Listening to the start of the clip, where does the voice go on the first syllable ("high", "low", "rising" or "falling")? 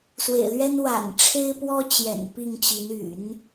low